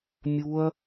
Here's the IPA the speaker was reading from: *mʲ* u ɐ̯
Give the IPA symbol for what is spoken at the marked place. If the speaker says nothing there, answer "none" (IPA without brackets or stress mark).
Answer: mʲ